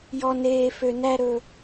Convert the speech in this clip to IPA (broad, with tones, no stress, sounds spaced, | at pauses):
j ɔ˧ n eː˧ f ø˧ n æ˦ ɾ ɵ˧